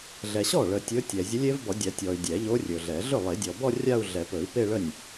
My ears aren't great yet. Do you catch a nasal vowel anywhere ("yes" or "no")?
no